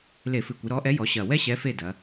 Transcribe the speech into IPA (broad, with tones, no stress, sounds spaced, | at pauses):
l e˧˩˧ f ɨ˨˩ kʷ ɨ˩˧ ɾ ɔ˨˥ ʔ ɛ˨˥ j ɔ˩˧ ɕ ɐ˨˩ w ɛ˥ ɕ ɛ˨˥ f e˥˨ d ɐ˩˧